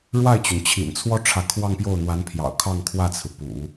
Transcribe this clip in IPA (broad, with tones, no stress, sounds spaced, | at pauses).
ɻ w a˥˩ ɪ̯ t͡ɕ y˩ n t͡ɕʰ ḭ˨˩ n t͡sʰ w ɔ˥ ʈ͡ʂʰ ä˧˥ kʰ w ɑ˥˧ ŋ p j o˥˩ ʊ̯ n̪ w a˧˥ n pʰ j ɑ̰˨˩ ʊ̯ kʰ ɑ˥˧ ŋ kʰ w ä˥˩ t͡sʰ ɹ̩˩ p ṵ˨˩˦